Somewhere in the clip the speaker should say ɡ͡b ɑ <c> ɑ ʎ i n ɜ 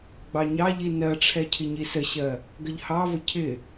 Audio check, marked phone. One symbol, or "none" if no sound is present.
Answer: ɲ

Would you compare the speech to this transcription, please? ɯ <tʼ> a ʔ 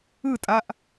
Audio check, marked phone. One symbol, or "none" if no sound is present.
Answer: tʼ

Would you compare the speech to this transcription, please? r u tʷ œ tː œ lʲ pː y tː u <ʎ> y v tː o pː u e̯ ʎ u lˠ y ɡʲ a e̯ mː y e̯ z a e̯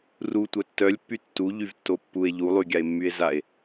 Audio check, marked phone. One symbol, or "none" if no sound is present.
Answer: ʎ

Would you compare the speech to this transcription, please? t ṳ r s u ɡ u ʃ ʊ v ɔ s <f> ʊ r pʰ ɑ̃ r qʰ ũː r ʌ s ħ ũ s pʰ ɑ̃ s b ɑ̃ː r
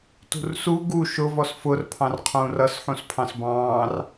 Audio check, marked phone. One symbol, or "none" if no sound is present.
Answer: f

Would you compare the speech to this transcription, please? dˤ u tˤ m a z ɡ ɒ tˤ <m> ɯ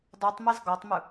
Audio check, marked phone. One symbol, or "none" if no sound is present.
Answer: m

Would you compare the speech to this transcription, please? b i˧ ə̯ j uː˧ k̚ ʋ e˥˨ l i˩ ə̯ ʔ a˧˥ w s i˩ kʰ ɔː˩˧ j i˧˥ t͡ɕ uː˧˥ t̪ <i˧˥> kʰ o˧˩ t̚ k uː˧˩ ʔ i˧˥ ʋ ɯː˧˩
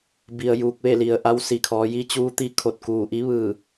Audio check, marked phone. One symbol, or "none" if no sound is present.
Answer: i˧˥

